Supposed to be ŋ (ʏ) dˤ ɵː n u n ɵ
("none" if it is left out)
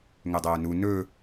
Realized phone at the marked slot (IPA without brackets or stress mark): ʏ